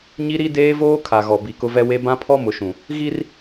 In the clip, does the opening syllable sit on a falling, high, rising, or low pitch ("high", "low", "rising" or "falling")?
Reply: high